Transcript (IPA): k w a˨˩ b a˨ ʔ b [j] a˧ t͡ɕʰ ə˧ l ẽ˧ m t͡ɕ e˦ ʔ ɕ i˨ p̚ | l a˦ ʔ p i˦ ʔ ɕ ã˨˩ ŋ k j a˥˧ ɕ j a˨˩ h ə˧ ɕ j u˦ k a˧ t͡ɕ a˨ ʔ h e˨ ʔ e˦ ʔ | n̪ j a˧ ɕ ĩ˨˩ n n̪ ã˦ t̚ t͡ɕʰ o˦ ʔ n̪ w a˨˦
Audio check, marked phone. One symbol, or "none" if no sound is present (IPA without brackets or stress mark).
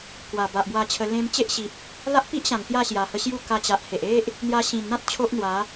w